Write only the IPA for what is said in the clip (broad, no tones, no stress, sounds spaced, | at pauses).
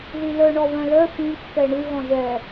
ð i l œ ɳ ɔ β œ̃ l œ f ĩ kː ɛ ɳ ʉ ɣ ɔ̃ ʒ ɛ